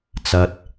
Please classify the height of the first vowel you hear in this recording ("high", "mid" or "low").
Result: low